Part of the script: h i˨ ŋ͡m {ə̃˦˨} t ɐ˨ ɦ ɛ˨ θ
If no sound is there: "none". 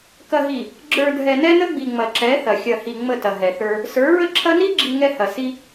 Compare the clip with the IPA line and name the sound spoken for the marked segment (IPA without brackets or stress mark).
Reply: ə˦˨